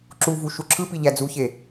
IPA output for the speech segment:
ǁ u v u ʃ u ǁʰ ɯ p i ʎ æ d͡z u ç e

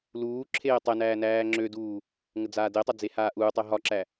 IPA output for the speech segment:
l uː ǁʰ eː tˤ ɛ n æː n æː ŋ͡ǁ ø d uː | ŋ ə d͡z aː d e tˤ ø d͡z e h aː ʔ uː tˤ ɛ ɦ ɒ ǁ æ

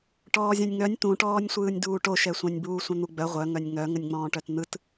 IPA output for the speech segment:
ʈ ɔː zʲ œ̃ nʲ ŋ œ nʲ t̪ ũ ʈ ɔː nʲ sʷ ɯː nʲ d uː ʈ o ʃ ɛ sʷ œ̃ nʲ b uː sʷ œ̃ n̪ u ɡ͡b œ ʁʷ œ ŋ œ nʲ ŋ œ ŋ ə nʲ ŋ͡m ɔ̃ː ʈ œ t n̪ ɯ t

